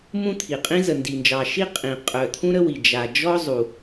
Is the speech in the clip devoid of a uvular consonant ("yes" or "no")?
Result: no